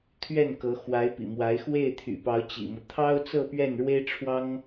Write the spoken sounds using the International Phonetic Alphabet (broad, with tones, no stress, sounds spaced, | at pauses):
t̪ʰ ɥ ɛ˥˩ n k ɤ˧˥ x w a˧˥ ɪ̯ p ḭ˨˩ m w a˧˥ ɪ̯ x w e˥˩ ɪ̯ t̪ʰ y̰˨˩ p ɑ˧˥ ʊ̯ t͡ɕ ḭ˨˩ m ɤ˦ t̪ʰ ɑ˥ ʊ̯ t͡s ɤ˥˧ p ɥ ɛ˥˩ n ɻ w e˥ ɪ̯ ʈ͡ʂʰ w ɑ˥ ŋ